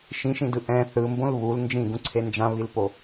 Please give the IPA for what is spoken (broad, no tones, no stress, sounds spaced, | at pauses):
ʃ ĩ ʃ ĩ d ɯ ʔ ɛ̃ θ ɯ m b õ l β u l n d͡ʒ ĩ ɡ ũ ǀʰ e n d͡ʒ ã β i l p o